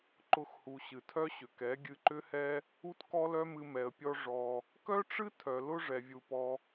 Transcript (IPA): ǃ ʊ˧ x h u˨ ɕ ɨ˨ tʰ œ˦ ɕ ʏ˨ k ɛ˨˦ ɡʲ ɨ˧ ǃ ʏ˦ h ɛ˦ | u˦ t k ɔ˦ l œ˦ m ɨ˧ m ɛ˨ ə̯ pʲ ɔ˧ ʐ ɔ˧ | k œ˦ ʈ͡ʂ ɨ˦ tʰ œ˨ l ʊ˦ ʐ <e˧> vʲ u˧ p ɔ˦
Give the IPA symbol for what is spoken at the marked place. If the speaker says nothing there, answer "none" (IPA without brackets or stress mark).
ɛ˧